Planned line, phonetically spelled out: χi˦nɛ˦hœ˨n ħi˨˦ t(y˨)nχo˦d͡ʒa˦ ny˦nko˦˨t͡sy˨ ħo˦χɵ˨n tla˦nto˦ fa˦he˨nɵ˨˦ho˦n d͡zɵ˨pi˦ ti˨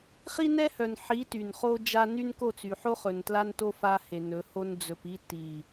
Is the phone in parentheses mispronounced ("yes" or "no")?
no